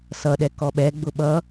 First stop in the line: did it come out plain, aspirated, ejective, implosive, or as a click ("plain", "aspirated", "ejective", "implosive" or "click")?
implosive